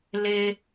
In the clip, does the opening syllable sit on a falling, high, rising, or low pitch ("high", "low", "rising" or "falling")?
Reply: high